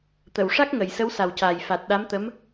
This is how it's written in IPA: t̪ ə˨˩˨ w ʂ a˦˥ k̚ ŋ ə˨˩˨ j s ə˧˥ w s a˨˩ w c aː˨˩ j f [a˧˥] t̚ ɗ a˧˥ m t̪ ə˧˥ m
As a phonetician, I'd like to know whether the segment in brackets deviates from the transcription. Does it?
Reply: yes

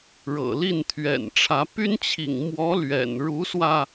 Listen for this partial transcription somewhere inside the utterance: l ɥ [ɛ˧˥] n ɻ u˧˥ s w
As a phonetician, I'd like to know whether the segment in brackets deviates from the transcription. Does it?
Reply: yes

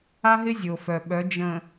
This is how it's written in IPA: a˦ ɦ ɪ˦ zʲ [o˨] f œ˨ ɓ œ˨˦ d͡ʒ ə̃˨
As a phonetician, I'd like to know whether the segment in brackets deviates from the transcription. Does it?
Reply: no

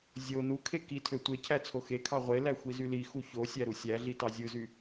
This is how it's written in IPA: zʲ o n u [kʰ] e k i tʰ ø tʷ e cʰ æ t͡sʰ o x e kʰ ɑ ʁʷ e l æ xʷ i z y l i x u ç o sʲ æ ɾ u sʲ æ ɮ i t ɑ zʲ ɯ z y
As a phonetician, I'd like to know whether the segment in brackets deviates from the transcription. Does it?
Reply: no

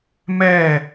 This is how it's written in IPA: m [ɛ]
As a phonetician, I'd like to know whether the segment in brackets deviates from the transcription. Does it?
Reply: no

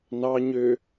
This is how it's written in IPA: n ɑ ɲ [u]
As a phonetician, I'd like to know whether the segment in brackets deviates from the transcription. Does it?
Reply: yes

